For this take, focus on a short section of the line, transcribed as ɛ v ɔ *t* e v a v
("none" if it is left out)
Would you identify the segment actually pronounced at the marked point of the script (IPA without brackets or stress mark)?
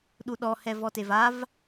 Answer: t